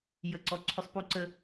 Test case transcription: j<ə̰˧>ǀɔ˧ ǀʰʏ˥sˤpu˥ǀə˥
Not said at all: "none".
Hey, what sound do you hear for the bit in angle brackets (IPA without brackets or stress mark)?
ə˧